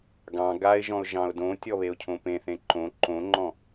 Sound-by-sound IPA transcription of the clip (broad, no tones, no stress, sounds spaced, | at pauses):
ɡ ɑ̃ ɡ a ɪ̯ ʒ ɔ̃ ʊ̯ ʒ ɑ̃ ʊ̯ d õ tʲ ɔ β e ʊ̯ cʰ õ p ẽ θ ẽ ǃ õ ǃ õ ŋ͡ǃ ɔ̃